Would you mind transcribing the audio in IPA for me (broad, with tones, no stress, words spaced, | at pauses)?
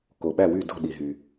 ko˩ɓæ˥˩wy˥˩ do̤˥˩ɗi˩ɦy˩